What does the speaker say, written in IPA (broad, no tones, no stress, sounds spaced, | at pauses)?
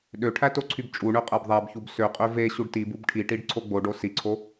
ɗ ø ʈʰ æ t o ǀʰ y b t͡ʃʼ u ɳ ø qʼ æ b ðˤ æ b ç u b s ø qʼ ø v e ɕ u ɖ t i b u b ʈʰ i ʈ i ɖ ǀʰ o ɡ͡b o ɖ o s i ǀʰ o